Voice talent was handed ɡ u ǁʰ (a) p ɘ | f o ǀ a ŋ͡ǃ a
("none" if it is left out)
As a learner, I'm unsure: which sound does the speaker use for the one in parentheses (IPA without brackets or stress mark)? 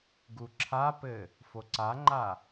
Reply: a